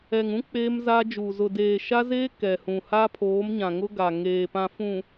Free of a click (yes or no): yes